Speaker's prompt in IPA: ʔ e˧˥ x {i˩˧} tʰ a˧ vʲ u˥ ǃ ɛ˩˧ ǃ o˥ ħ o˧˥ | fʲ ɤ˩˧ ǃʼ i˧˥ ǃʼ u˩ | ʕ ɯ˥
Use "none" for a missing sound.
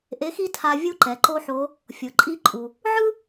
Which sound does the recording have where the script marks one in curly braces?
i˥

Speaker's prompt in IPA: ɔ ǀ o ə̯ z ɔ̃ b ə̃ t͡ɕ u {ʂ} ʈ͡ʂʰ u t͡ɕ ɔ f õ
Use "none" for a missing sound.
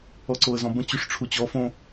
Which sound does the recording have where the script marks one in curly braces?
ʂ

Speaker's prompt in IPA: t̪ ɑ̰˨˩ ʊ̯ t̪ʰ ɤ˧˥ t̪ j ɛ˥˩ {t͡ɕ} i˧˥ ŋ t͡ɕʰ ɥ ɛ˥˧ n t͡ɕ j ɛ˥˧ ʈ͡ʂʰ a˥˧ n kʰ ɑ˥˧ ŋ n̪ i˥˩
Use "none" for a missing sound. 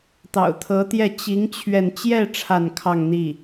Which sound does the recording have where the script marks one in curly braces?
t͡ɕ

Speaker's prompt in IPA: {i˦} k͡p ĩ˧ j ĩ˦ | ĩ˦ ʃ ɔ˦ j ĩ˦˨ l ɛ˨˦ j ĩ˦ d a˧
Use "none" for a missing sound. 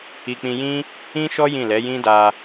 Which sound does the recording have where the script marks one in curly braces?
i˧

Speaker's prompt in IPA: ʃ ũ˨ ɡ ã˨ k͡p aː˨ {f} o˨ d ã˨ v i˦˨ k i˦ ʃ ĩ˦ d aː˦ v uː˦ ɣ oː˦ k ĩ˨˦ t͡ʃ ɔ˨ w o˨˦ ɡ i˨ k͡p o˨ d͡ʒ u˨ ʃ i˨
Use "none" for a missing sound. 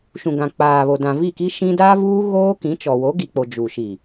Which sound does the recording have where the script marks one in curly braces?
β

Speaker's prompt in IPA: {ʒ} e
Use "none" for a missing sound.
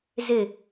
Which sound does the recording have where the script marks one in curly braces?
z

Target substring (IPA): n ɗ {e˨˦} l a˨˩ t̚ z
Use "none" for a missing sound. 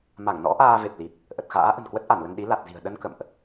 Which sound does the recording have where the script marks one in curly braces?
i˨˦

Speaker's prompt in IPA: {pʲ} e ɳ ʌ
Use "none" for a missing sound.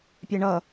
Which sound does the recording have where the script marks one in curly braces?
pʲ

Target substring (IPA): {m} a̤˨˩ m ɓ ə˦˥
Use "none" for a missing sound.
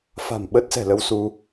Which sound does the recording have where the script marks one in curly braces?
f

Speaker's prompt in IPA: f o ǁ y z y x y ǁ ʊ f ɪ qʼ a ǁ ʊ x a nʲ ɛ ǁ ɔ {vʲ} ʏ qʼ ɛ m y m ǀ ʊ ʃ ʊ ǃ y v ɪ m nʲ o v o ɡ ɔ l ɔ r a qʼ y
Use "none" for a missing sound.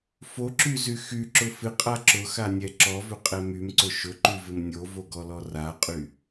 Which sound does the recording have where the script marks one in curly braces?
v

